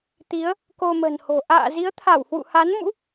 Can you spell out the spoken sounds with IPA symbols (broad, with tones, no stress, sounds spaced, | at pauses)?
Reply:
t̪ i˨˦ ə̯ | k o˧ m ə̤˨˩ n h o̤˨˩ ʔ a̰ː˧˨ z i˨˦ ə̯ t̪ʰ a˧˩ w h w ṵ˧˨ h a˨˦ n m ṵ˧˥